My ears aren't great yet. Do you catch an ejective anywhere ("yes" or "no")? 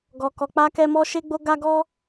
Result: no